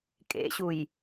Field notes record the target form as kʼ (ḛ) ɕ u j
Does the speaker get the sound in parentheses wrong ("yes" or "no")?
no